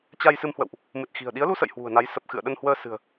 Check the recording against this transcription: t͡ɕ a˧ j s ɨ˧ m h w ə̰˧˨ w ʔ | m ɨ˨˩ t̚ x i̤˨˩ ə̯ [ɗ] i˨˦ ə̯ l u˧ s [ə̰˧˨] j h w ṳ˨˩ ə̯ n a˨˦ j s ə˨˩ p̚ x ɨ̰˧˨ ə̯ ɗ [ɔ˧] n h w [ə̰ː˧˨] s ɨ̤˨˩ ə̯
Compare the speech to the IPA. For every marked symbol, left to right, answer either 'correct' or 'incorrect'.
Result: correct, correct, incorrect: ə˧, incorrect: əː˧

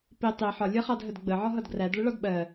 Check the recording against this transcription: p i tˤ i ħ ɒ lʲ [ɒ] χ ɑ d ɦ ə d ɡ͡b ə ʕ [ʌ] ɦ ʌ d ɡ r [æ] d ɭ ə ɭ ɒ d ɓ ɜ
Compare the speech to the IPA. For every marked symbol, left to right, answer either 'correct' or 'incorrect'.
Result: incorrect: ʌ, incorrect: ɒ, correct

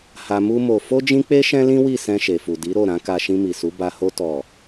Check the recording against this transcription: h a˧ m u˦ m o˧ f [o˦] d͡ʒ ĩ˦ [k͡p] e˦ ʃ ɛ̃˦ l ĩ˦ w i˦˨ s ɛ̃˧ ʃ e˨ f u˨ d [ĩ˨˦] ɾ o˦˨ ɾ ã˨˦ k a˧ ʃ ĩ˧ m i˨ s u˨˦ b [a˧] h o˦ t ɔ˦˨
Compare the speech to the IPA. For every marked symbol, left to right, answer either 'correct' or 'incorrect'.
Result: correct, correct, incorrect: i˨˦, correct

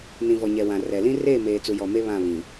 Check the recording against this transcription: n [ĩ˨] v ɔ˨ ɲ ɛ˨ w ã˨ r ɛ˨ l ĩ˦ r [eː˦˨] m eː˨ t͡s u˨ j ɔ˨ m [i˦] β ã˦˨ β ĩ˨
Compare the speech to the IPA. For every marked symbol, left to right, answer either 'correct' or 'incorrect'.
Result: correct, correct, incorrect: e˦

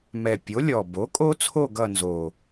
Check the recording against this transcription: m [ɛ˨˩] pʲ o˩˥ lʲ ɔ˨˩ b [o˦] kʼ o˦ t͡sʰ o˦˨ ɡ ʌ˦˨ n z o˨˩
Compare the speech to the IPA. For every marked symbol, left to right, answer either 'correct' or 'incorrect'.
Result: correct, incorrect: o˩˥

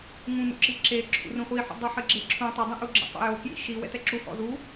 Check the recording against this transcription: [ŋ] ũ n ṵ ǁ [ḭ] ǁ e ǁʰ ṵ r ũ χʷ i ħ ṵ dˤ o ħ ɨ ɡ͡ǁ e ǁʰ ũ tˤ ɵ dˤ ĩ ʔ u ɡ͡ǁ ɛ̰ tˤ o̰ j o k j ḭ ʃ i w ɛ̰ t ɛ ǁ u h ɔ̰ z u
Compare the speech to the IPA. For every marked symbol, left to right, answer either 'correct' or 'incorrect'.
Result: correct, incorrect: i

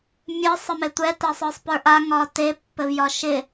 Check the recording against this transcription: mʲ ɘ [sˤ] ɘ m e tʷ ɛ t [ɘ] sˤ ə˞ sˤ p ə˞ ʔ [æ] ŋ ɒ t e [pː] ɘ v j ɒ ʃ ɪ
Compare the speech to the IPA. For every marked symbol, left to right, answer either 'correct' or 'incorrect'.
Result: correct, incorrect: ɛ, incorrect: a, correct

